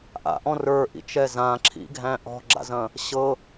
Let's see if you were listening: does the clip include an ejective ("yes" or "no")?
no